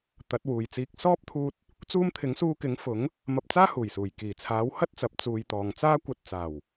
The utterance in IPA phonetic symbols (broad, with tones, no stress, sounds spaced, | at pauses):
t̪ ɐ˨˥ t̚ w uː˨ j t͡s iː˧ k̚ s ɔː˥ p̚ t̪ʰ uː˧ t̚ | t͡s uː˧ m t̪ʰ ɪ˨˥ ŋ s uː˧ k ɪ˨˥ ŋ f ʊ˨˥ ŋ | m ɐ˧ p̚ t͡s aː˥ h uː˨˩ j s uː˨˩ j k iː˨˩ t͡sʰ aː˨˥ w h ɐ˥ t̚ t͡s ɐ˨ p̚ t͡s uː˨˧ j t̪ ɔː˨ ŋ t͡s aː˥ kʷ ɐ˧ t̚ t͡s aː˨˩ w